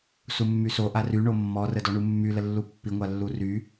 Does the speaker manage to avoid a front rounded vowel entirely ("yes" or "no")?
no